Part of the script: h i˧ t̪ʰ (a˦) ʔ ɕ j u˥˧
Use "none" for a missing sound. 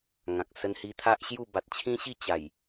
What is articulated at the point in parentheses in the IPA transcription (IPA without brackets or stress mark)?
a˦